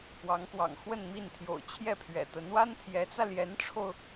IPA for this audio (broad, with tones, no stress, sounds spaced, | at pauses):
k w ɑ˧˥ ŋ k w ɑ̰˨˩ ŋ x w ə˥˧ n m i˥˩ n t̪ʰ j o̰˨˩ ʊ̯ t͡ɕʰ j ɛ˥˩ pʰ ɥ ɛ̰˨˩ t̪ ə˧˥ n w a˥ n t̪ʰ j ɛ˧˥ t͡s ä˧ l j ɛ˧˥ n ʈ͡ʂʰ o˧ ʊ̯